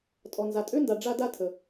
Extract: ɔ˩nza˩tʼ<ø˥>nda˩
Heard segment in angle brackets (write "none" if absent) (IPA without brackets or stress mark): ø˥